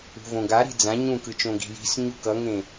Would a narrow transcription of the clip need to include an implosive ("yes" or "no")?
no